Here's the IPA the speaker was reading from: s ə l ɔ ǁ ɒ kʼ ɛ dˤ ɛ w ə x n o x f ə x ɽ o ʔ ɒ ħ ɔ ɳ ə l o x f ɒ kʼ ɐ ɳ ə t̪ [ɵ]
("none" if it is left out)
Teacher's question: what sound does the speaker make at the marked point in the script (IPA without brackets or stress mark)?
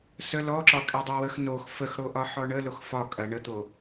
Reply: o